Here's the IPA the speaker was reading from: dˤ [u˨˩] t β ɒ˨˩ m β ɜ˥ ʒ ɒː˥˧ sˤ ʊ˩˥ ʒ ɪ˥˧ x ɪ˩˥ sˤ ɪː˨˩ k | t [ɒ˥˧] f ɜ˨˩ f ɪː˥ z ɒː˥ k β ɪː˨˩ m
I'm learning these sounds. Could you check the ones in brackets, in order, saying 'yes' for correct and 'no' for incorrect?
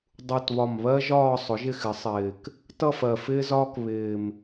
yes, no

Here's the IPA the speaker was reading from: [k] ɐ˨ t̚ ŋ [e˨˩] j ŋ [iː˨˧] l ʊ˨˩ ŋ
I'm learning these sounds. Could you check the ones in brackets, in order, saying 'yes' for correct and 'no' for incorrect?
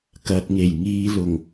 yes, yes, yes

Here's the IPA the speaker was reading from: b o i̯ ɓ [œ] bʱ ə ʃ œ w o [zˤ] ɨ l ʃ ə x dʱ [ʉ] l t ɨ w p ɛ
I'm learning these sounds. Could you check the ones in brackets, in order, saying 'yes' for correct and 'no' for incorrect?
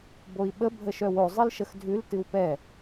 no, yes, yes

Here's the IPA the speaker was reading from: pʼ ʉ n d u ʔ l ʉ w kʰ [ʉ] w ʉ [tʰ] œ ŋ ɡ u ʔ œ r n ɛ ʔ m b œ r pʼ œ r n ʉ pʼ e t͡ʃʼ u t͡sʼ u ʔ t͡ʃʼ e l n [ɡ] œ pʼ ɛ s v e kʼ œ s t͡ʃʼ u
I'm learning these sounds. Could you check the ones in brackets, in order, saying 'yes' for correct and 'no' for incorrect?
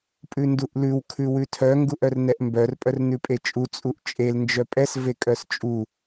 yes, yes, no

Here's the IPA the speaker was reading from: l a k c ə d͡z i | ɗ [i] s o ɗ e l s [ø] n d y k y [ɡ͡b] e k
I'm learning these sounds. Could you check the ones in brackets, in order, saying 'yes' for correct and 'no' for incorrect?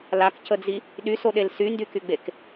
no, no, yes

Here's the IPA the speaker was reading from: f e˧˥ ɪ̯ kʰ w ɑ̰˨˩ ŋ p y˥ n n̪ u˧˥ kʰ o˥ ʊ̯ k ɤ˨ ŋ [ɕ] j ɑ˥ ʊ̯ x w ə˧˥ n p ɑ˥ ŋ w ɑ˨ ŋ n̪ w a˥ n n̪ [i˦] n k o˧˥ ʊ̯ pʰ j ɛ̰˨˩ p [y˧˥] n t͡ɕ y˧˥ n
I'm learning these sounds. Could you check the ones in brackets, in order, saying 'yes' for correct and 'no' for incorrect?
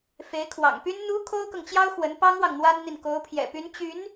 no, no, yes

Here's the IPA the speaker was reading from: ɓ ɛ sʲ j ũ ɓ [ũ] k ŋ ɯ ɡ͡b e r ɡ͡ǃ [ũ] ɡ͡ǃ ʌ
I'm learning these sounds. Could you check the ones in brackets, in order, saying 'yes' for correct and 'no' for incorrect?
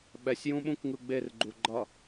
yes, no

